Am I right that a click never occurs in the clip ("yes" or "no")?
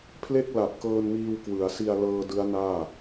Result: yes